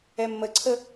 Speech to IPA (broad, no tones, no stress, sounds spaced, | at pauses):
ɛ mː ə ǀʰ ə